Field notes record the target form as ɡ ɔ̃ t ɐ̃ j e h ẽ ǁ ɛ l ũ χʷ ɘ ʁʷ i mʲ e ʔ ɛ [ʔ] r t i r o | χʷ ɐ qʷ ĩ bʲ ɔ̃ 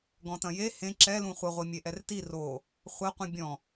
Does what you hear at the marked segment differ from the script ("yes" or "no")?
yes